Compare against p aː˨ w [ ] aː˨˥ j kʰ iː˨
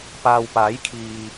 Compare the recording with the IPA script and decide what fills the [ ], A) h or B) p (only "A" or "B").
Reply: B